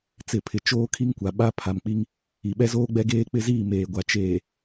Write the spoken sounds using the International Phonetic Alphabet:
t͡s ɪ˨ pʰ ɪ˨ t͡ʃ oː˦ kʰ i˦ ŋ kʷ a˨ ɓ a˦ pʰ a˨ m k͡p i˦ ŋ | i˨ ɓ ɛ˦ z oː˦ ɡ͡b ɛ˦ ɡ eː˦ k͡p ɪ˦ z iː˦˨ m eː˨ ɡʷ a˨ t͡ʃ eː˨

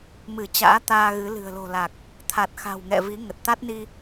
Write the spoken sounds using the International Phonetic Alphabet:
m ɨ˧˩ t͡ɕ a̰ː˧˥ t̪ aː˧ ɣ ɨ˨˦ l ɨ̤˨˩ ə̯ l o̤˨˩ l a˨˩ k̚ | t̪ʰ a˨˩ t̚ x a̤˨˩ w ŋ ɛ̰˧˨ v i˨˦ ŋ ə˨˩ t̚ t̪ a˦˥ t̚ n i˧

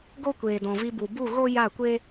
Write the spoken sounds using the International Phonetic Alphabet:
ɡ o˦ kʷ eː˨ d ɔ̃˨ v i˧ b u˨ b u˦˨ ɣ o˦ j a˦˨ kʷ e˦

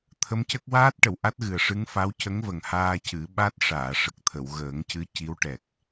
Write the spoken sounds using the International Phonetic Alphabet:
t̪ʰ ə˧˥ m c ə˦˥ k̚ w aː˦˥ t̚ ʈ ə˨˩˨ w ʔ a˦˥ t̚ ɣ ɨ˨˩ ə̯ ʂ ɨ˧˥ ŋ f a˧˥ w c ə˧˥ ŋ v ə˨˩ ŋ h aː˧ c ɨ˨˩˦ ɓ a˦˥ t̚ ʂ aː˨˩˨ ʂ ə˨˩ k̚ t̪ʰ ə˨˩˨ w ɣ əː˨˩˦ ŋ c ɨ˧˥ c i˧˥ w ʈ ɛ˨˩ k̚

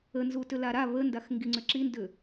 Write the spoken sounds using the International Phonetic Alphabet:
ə n z u t ʏ l a ɾ a β ə n d a x ŋ ɡ i ŋ͡ǀ ʏ ǁ i n d ʏ

